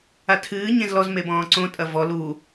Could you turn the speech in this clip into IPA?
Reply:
atʰɨː ɲẽzlɔz mebɔ̃ːǀõ tʼɐvɔ lu

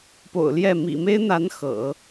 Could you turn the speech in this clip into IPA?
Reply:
po̰˨˩ʊ̯ljɛ˥˩ mḭ˨˩me˥ɪ̯n̪a˧˥n xɤ̰˨˩˦

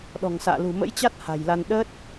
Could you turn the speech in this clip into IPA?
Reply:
ɗɔ̤˨˩ŋsa̰ː˧˨ lṳ˨˩mə̰˧˥jt͡ɕa˦˥t̚ ha̤˨˩jla˧n ɗəː˦˥t̚

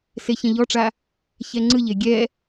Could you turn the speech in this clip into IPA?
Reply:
seçɛ̃ʎɔʈ͡ʂa | çɛŋ͡ǀɯʎe ɡʲɛ

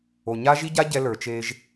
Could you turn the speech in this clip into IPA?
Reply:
o˨ɲa˦ʒi˦ɟa˦ ɟɛ˦lə˞˨ t͡ʃe˦ʒ

